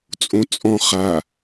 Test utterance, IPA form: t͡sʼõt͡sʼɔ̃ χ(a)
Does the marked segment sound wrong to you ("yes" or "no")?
no